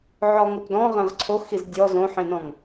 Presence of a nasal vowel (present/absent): present